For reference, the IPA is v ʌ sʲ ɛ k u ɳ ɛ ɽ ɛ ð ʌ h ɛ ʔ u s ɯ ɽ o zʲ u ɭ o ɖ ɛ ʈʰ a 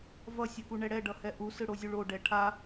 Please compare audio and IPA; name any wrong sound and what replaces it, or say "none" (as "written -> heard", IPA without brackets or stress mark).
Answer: ð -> ɖ